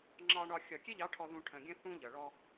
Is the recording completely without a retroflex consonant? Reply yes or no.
no